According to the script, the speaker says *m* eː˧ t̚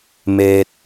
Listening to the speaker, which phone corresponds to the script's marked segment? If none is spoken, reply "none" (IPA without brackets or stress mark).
m